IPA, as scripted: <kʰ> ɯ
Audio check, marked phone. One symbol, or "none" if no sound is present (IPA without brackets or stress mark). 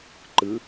ǃ